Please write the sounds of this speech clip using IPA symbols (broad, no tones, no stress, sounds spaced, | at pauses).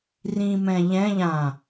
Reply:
r ĩ m ɛ̃ ʎ ɛ̃ ʎ ã